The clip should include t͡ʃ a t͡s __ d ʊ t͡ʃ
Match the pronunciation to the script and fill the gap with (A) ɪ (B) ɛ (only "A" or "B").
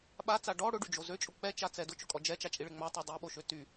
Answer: B